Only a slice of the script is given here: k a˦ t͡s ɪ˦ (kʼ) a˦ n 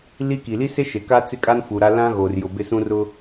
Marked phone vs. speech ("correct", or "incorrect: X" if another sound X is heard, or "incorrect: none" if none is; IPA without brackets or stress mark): correct